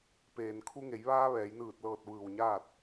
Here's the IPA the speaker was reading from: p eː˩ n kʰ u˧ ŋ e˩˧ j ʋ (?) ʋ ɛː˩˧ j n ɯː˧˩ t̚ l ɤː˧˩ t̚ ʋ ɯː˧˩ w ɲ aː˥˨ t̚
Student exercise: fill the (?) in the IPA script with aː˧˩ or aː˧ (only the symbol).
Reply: aː˧